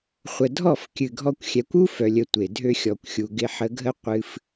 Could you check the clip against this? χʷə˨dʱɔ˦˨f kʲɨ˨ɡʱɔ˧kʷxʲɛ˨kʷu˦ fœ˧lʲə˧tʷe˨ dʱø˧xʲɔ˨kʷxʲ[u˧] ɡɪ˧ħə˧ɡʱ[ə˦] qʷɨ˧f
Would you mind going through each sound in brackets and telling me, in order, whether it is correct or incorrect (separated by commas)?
incorrect, correct